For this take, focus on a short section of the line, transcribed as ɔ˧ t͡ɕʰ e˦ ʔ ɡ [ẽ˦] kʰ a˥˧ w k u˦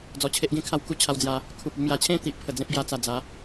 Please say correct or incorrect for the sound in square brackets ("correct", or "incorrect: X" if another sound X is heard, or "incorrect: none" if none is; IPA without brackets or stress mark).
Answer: correct